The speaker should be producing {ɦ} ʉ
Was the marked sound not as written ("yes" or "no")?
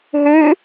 no